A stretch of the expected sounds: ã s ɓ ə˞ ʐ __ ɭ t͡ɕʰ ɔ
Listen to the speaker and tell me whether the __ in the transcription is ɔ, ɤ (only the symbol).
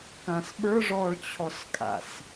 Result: ɔ